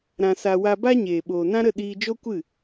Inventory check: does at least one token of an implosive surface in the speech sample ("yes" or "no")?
yes